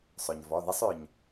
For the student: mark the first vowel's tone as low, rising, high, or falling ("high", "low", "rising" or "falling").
low